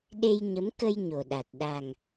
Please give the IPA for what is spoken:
ɗ e˧ j ɲ ə˨˦ m k ə˧ j ɲ o˨˩ ɗ a˨˩ t̚ ɗ a˨˩ ŋ

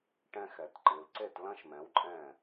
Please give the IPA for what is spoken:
ʈ ɛ̃˧ x ɛ˩ t ǃ ɨ˩ l ǀ e˥˩ t l ɐ̃˥ ʃ m ɛ̃˩˥ w ǃʼ ɛ̃˥˩

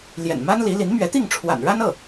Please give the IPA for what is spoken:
l j ɛ̰˨˩ n m a˥ n l i˧˥ l i˧˥ n m ɥ ɛ˧˥ t̪ i˥˩ ŋ ʈ͡ʂʰ w a̰˨˩ n ɻ a˥ n ɤ˥˩

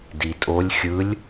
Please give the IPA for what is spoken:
d i tʼ o lʲ xʲ ɯ lʲ

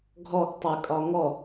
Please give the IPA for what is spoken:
ɡʱ ɔ ɡ tˤ ʊ j kʼ ɒ ŋ ɔ

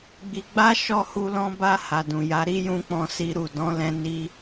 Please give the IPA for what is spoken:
ɡ͡b i˧ ɡ͡b a˦ ʃ ɔ˦˨ h u˧ l ɔ̃˧ b a˧ h a˨ d ũ˨ j a˨˦ ɾ i˦ j ũ˧ k͡p ɔ̃˧ s i˧ ɾ u˨ d ɔ̃˨˦ l ɛ̃˧ n i˧

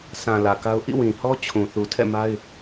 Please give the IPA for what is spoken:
s ã˨ l ä˨ k a˦ ʊ̯ ʔ ḭ˦˨ w ĩ˨ h ɔ˦ t͡ɕʰ ũ˨ θ u˨ tʰ ɛ̰˦˨ m a˦ ɪ̯

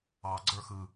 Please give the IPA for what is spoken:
ɑ ɡ͡ǀ ə˞ x ɯ

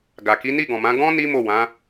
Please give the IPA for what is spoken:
ɡ a˨ k i˨˦ n i˦˨ ɡ ɔ̃˨ m ã˨˦ ɡ ɔ̃˦ n i˦ m o˦˨ w ã˨˦

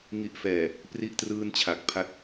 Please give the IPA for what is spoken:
ŋ i˨˩ ʔ f ɛː˨˩ | p r i˦˥ ʔ t r ɯː˥˩ n t͡ɕʰ a˨˩ k̚ pʰ a˥˩ t̚

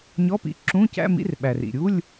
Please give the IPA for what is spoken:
ɲ ɔ˧˥˧ p ḭ˧ ǁ ũ˧˥˧ c æ̰˧˥˧ m ḭ˧˥˧ r ɓ æ˩ r ḭ˩ ɾʲ u˧˥˧ lʲ

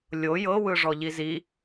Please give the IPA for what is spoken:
lʲ o j ɤ w ɯ ʐ ɔ ʎ i z i

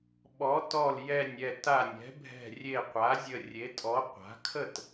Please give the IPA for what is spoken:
ɓ ɔ˩˥ t ɔ˧˩ l j ɛ˧˩ nʲ ɛ˧˩ t a˧˩ nʲ ɛ̤˩˥ bʱ ɛ̤˧˩ rʲ e˧˩ qʷ a˩˥ zʲ ə˧˩ rʲ e˩˥ tʼ ɔ˩˥ qʷ a̤˩˥ kʰ ə˥˩ t

